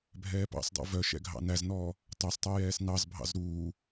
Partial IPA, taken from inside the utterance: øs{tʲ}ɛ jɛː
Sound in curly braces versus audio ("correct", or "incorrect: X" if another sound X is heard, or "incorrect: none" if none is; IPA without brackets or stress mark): incorrect: tˤ